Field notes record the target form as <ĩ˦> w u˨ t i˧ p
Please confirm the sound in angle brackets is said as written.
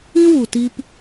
yes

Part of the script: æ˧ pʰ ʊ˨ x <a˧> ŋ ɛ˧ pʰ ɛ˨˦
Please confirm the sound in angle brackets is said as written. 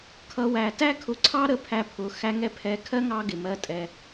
no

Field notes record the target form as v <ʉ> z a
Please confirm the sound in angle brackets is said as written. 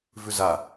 yes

